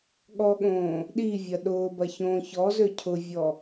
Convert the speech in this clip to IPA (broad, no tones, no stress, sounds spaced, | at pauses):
ɠ ɔ ɠ õː | ɗ i vʲ ɐ ɗ ʊː b ɐ ç õː ç ɔ z ø cʰ ʊ vʲ ɔ